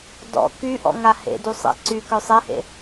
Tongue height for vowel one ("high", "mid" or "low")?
mid